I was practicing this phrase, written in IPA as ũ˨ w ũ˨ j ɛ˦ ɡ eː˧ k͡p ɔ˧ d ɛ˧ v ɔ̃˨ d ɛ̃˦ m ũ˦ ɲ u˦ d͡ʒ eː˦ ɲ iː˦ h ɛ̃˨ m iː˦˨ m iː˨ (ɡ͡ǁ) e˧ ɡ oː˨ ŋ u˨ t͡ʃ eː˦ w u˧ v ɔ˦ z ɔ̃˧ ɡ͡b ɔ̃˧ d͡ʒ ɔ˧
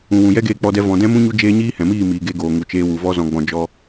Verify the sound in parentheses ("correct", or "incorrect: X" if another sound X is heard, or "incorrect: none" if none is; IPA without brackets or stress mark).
incorrect: ɡ